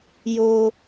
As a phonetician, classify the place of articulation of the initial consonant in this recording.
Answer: palatal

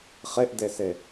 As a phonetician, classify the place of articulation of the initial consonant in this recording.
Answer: uvular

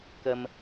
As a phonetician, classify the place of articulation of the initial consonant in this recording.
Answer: velar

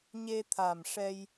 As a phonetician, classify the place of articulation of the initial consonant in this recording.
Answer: palatal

